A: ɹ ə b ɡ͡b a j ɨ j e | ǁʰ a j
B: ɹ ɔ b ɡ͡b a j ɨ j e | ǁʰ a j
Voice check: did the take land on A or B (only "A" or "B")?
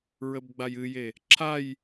A